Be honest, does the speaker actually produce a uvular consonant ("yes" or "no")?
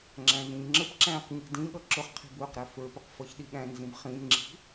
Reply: yes